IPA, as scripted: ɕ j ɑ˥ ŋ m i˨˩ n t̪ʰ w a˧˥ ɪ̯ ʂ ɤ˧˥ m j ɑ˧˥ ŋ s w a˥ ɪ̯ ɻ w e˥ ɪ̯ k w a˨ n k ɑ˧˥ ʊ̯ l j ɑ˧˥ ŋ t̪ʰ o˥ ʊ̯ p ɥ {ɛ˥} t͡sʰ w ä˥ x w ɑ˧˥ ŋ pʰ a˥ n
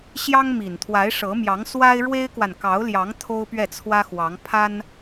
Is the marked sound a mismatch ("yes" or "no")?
yes